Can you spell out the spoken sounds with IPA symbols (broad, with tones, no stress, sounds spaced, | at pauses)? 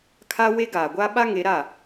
kʰ a˦ w e˦ ɡ aː˨ ɡʷ a˦ ɓ a˦ ŋ e˨˦ ɾ a˦˨